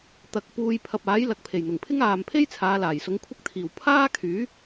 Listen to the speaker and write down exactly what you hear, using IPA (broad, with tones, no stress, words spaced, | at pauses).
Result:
t̪ɐ˨˥k̚ puː˧j pʰɐ˨p̚aː˨˥j lɐ˨k̚pʰe˨˩jn̪ʊ˨˩ŋpʰɪ˥ŋ aː˨mpʰe˥j t͡sʰaː˨˧laː˨˩j sʊ˨˥ŋkʷʰɐ˥k̚ t̪ʰiː˨˩w pʰaː˥kʰyː˨˥